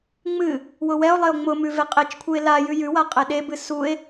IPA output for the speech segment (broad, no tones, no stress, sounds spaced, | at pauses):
ŋ͡m ɨ | w ʊ w ɛ o̯ lˠ e o̯ ŋ͡m ʊ m ʉ v e qʼ e t͡ʃ kʷʰ ɨ e̯ l a j ʉ j ʉ w a qʼ e ɗ e b ɨ s u e̯